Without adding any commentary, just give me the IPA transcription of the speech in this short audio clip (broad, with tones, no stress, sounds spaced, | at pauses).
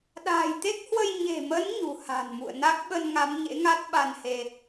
ɗ a̤ː˨˩ j t̪ e˦˥ k̚ h w ə˧ j ɲ e̤˨˩ m ə˨˦ n ɲ ṳ˨˩ h a̤˨˩ n m ṵ˧˨ ə̯ n a˦˥ k̚ ɓ ə˧ n ŋ a˨˦ m ɲ ḛ˧˥ ŋ a˦˥ t̚ ɓ a˧ n h e˧